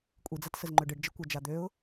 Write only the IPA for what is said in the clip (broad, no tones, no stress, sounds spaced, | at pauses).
kʷʼ i d͡z a t s ə z ŋ͡ǃ ø ɖ ɨ ɖ d͡ʒ ə kʷ ʌ d͡ʒ a d̪ ø ʊ̯